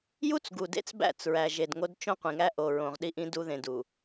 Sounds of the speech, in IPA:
j u˦ t͡s ɡ u˨ d ḛ˦ t͡s b æ̰˦˨ t͡s ɹ æ˨ ʒ e˨ d ŋ o˦ d t͡ʃ õ˦ qʷ ĩ˨ ŋ æ˦ ʔ o˨ ɹ õ˨ ʁ ɗ i˦ ʔ ĩ˦ d u˦ ð ẽ˨ d u˨

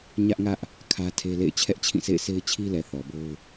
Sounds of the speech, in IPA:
ɲ ä˦ ʔ ŋ ä˦ ʔ | kʰ ä˦ tʰ e˦ l ḛ˦˨ ɪ̯ t͡ɕʰ ɛ˦ ʔ t͡ɕʰ ĩ˦˨ s ḛ˦˨ ɪ̯ sʰ e˦ ɪ̯ t͡ɕʰ i˦ l ɛ˨ θ ɔ˨ b o˦ ʊ̯

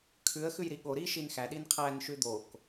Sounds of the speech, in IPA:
kʰ ʉ ə̯ x ʉ j ɾ i ɠ o ɾ i ʃ i n x æ ɗ i n qʰ æ n ʃ ʉ d̪ o k

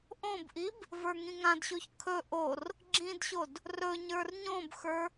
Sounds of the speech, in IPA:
ʔ õ b ʔ i b | v ə˞ ŋ ĩ ŋ ã d ɕ o ç kʰ ɵ ʔ o r | ɡ͡ǁ ĩ d ɕ o d | r ɵ ɲ ə˞ r ɲ õ b x ə˞

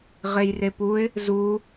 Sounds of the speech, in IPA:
ʁ e j r e p u ɪ̯ | z u

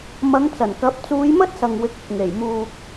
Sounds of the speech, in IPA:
m ɐ˨˧ ŋ t͡s ɐ˨˩ n k ɐ˨˥ p̚ t͡s uː˨˧ j m ɐ˥ t̚ s ɐ˨ ŋ w ɪ˧ k̚ ɪ˨ k̚ ŋ e˨˩ j m uː˧ k̚

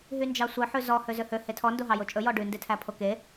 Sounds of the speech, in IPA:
ɦ y n d͡ʒ ɑ sʷ œ ħ ʉ z ɔ h ø z ø h ø h e tʰ ɔ n d o ɦ ɑ j o t͡ʃʼ ɵ j ɔ ɖ ʉ n d e tʰ æ pʰ o k e

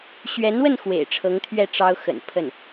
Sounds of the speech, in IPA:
ɕ ɥ ɛ˧˥ n w ə˥˩ n x w ḛ˨˩ ɪ̯ ʈ͡ʂʰ ɤ˧˥ ŋ t̪ʰ ɥ ɛ˥˩ ʈ͡ʂ ɑ˥ ʊ̯ x ə̰˨˩ n pʰ ə˥˩ n

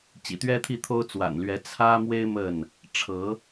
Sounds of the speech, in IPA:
t͡ɕ ḭ˨˩ t̪ ɥ ɛ˦ t̪ʰ i˥˨ t̪ʰ o˦ ʊ̯ t͡s w a̰˨˩ n l ɥ ɛ˨˦ t͡sʰ ä˦ m w e˦ ɪ̯ m ə˥˨ n | ʈ͡ʂʰ ɤ˨˦

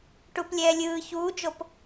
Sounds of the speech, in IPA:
ʈ u p lʲ ɛː lʲ ɯː ç uː d͡ʒ o p

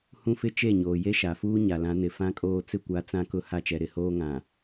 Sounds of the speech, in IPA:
h ũ˦ f ɪ˦ t͡ʃ e˦˨ ɲ oː˨ j e˦ ʃ a˨ f uː˦ ɲ a˨ l ã˨˦ n ɪ˨ f ã˦ kʼ oː˦ t͡s ɪ˦˨ kʷ a˨˦ t͡s ã˦ k ʊ˦ h a˦ t͡ʃ ɛ˨ ɾ ɪ˨ h oː˦ ŋ ã˨

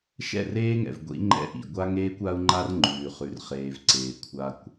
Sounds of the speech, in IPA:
ʃ ɛ̰˦˨ r eː˦ ŋ ɛ̰˨ v ɡʷ ḭ˨˦ ŋ͡ǃ ɛ̰˦ ʔ ḭ˨ ɡʷ a˦ ŋ eː˦ kʷ a˦ u̯ ŋ͡ǃ a˦ r ŋ͡ǃ ʉː˨ χ ʉ˨ r χ eː˨ v ǀ eː˨ kʷʰ a˦ kʷ

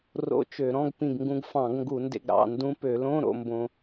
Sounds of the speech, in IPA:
r o̰˧˥˧ t͡ʃ ø˧˩˧ ɾ ɔ̃˧˥˧ ɡ p ĩ˧˩ ɡ ŋ ɡ ũ˧ ɡ f ɑ̃˧˩˧ ɡ ŋ ɡ u˧˩˧ n d ḛ˧ ɡ ɾ ɑ̰˧˩ n d ũ˧ p ø˧˩˧ l õ˧˥˧ ɾ o̰˥˧ m b õ˧

